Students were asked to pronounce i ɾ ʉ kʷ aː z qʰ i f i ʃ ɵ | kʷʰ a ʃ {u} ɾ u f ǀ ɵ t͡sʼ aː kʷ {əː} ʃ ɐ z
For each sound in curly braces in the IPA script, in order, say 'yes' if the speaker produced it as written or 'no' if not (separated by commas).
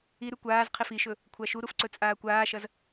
yes, no